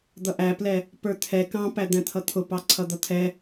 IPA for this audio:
d̪ ʌ ʔ æ p l ɛ | p ə˞ t̪ʰ ɛ k ɑ̃ p æ d̪ æ̃ t̪ʰ ʌ t̪ʰ ʊ p ɑ ǀʰ ʌ d̪ ʌ t̪ʰ ɛ

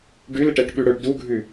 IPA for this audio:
ɖ ʉ l ɪ ʈ ɛ ʈ ɓ ʉ ɽ ɵ ɖ d u ɡʱ ʉ

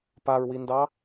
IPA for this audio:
p a ɹ w i n d ɑ

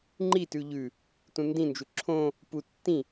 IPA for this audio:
ŋ͡ǃ i t ʉ ʎ ʉ | t ũ n d ĩ n d͡ʒ u ǁʰ õ | p u tː ĩ

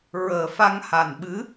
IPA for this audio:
ɹ əː˨˩ f a˧ ŋ h a˨˩ n ɓ ɨ˧˥

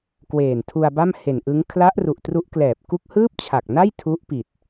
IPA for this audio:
k w eː˨˩ n tʰ u˧ a̯ b a˥˩ m h e˨˩ n ʔ ɯ˦˥ ŋ kʰ l a˦˥ ʔ r u˨˩ ʔ t r u˦˥ ʔ k l ɛː˨˩ p̚ k u˦˥ k̚ h ɯː˥˩ p̚ t͡ɕʰ a˨˩ k̚ n a˥˩ j tʰ u˦˥ ʔ p i˨˩ t̚

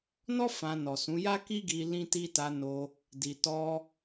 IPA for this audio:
n ɔ˦ f ã˧ n ɔ˨ s ũ˨˦ j a˦ k i˦ ɡ i˧ l ĩ˦ t i˦ t a˧ n o˧ | d i˨ t ɔ˧

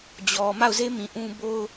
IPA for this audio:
d͡ʑ ɔ˨ m a˦˨ ʊ̯ z e˦ m ĩ˨ ʔ ũ˦ b o˦ ʊ̯

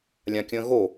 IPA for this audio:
lʲ ã kʲ ə̃ː ɣ o

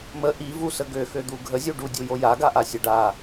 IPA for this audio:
m ə ʔ i v u s ə ɡ ø x ø d̪ u ɡʱ ə zʲ u ɖ u dʲ u j o j a ɡ a ʔ a sʲ ə ɖ a

